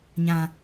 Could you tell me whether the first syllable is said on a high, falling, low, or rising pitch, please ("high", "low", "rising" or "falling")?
low